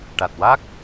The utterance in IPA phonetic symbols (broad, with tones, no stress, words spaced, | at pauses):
ʈa˨˩t̚wa˦˥k̚